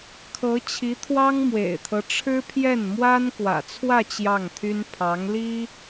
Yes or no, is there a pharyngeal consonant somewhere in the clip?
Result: no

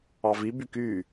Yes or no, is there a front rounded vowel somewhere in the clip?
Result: yes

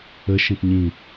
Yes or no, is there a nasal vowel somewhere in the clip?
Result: yes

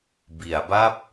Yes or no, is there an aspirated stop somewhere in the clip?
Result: no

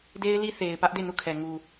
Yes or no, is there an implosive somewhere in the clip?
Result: no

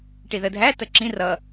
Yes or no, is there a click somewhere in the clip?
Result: yes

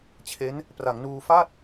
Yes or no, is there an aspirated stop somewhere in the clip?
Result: yes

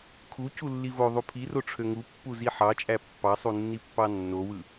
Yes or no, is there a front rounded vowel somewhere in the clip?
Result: yes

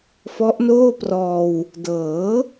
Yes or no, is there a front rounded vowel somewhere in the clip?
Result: no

